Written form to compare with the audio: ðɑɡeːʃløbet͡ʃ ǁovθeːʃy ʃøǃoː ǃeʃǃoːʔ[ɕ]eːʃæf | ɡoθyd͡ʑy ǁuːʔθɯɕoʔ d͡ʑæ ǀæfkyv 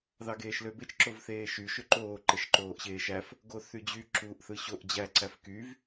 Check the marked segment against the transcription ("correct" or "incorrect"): correct